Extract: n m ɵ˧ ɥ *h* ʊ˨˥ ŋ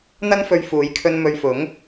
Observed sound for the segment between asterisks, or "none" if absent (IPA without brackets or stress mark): f